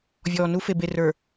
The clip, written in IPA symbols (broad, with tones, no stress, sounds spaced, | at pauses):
vʲ ɔː˨ n u˦ f e˨ b e˨ r ə˞˨